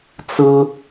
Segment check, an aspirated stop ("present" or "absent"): absent